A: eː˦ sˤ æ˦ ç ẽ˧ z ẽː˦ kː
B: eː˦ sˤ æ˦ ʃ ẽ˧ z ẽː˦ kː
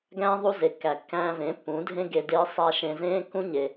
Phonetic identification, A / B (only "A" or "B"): B